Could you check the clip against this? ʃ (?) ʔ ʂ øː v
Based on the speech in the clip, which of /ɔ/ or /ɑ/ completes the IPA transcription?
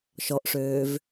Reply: ɔ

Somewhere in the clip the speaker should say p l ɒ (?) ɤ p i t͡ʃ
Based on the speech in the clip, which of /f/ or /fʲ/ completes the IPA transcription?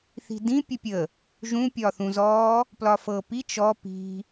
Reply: f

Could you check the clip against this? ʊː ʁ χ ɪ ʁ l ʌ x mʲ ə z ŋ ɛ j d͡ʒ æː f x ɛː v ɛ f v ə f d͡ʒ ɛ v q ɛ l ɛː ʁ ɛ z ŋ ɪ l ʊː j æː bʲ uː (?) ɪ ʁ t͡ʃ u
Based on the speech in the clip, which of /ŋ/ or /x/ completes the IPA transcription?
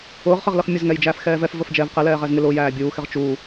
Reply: x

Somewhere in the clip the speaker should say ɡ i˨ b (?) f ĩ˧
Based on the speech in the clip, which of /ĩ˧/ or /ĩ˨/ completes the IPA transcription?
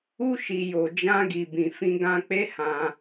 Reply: ĩ˨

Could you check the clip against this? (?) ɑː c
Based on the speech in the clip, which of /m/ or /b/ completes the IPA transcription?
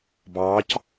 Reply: b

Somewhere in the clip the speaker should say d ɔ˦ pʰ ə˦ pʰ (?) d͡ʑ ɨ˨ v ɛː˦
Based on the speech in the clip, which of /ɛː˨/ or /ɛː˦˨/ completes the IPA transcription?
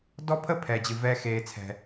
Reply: ɛː˨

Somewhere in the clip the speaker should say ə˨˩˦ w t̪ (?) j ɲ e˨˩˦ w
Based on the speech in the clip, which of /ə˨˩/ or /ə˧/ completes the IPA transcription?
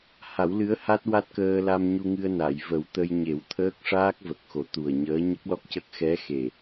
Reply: ə˧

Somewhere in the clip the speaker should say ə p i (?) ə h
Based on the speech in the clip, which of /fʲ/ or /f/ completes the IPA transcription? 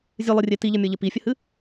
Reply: fʲ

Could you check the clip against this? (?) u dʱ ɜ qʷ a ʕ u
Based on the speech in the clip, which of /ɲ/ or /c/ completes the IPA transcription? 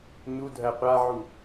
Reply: ɲ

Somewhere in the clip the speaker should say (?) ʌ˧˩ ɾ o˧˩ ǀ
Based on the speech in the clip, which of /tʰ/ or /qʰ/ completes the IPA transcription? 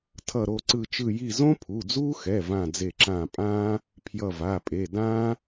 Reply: tʰ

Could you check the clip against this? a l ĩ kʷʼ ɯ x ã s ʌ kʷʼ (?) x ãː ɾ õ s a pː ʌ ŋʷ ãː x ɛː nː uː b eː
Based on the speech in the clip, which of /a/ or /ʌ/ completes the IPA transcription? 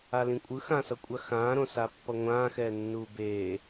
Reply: a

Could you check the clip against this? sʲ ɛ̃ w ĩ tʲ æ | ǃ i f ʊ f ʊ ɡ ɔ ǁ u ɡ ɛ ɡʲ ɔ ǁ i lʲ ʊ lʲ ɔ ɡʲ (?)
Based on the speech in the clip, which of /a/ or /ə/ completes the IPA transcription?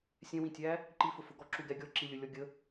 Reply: ə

